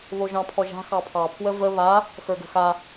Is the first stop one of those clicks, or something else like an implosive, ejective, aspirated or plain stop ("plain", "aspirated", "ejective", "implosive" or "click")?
aspirated